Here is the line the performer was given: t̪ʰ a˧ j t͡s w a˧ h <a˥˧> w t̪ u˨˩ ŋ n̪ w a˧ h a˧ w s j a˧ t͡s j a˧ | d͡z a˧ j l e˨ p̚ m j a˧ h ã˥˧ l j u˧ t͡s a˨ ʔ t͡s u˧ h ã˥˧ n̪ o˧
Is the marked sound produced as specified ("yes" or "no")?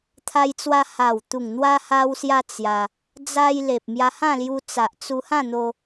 no